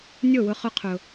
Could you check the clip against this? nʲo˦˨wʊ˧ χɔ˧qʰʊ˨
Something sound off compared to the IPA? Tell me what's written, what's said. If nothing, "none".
ɔ˧ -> ʊ˧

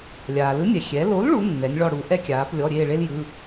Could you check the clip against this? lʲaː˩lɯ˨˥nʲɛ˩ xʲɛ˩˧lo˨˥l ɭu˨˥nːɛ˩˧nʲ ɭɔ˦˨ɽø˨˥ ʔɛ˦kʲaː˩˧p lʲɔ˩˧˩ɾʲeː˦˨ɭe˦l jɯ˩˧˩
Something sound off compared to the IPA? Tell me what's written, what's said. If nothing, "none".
ø˨˥ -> u˨˥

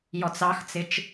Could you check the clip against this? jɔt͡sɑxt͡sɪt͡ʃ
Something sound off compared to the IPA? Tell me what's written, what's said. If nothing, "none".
none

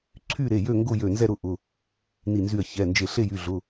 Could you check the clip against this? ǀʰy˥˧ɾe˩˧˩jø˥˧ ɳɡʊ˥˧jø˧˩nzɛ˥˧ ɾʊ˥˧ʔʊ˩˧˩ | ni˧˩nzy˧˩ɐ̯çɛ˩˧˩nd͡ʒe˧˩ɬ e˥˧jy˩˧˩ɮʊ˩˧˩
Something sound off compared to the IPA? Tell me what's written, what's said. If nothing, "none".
ɳ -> ŋ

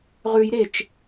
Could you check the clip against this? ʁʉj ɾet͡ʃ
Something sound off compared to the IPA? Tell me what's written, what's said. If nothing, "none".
none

